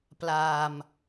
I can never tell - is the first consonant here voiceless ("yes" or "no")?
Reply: yes